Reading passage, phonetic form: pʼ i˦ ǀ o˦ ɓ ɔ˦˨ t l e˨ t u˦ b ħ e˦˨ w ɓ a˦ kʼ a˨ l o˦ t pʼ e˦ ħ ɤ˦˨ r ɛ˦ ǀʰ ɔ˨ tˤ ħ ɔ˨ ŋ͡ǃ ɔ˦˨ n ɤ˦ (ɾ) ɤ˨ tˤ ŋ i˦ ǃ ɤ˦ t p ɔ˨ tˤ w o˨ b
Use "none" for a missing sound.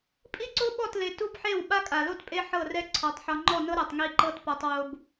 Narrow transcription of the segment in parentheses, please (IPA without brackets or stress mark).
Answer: ɾ